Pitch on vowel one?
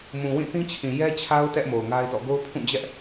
low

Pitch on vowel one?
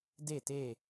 falling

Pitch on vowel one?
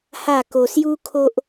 falling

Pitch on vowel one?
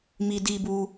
high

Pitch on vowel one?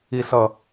low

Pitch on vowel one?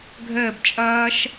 falling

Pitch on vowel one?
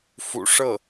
low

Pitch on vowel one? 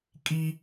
high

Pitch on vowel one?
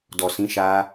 low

